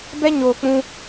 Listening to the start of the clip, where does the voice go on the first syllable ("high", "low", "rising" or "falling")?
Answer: high